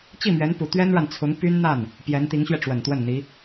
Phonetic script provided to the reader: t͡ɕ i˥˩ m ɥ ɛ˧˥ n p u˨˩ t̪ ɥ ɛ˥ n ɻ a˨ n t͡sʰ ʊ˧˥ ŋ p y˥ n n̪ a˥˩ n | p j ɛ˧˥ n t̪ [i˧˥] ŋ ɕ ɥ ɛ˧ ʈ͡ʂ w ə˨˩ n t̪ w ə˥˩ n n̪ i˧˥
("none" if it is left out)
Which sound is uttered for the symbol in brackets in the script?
i˧˥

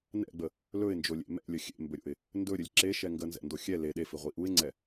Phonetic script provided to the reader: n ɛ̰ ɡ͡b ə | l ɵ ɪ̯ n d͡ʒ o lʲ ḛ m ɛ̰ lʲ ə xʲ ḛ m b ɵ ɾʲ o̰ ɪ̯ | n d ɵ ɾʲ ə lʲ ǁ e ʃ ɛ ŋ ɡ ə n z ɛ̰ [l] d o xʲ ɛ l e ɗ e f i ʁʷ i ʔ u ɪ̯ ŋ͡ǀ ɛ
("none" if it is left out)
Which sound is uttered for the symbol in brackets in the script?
n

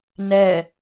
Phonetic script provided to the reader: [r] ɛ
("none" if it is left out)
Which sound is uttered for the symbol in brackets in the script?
n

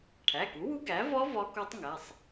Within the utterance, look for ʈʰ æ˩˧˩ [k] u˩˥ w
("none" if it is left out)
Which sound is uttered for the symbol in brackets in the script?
k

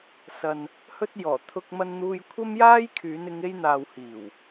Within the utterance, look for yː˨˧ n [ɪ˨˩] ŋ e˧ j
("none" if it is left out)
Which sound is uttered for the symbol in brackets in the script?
ɪ˨˧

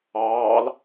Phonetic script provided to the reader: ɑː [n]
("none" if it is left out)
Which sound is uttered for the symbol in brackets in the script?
l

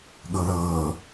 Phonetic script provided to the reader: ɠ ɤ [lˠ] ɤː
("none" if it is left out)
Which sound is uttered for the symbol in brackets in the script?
l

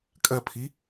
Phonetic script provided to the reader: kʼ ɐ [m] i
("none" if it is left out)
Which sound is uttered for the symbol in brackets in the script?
pʰ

